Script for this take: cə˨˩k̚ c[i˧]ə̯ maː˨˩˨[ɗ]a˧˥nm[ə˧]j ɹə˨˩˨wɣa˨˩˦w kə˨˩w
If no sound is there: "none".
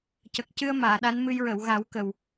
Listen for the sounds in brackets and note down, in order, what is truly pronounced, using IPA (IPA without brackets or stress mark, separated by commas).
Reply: ɨ˧, ɗ, ɨ˧